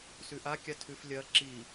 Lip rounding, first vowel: rounded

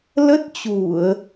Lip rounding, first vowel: unrounded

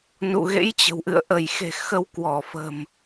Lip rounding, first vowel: rounded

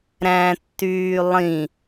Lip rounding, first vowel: unrounded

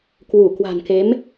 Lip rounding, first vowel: rounded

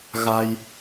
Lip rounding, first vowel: unrounded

